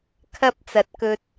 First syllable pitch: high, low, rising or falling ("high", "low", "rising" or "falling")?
high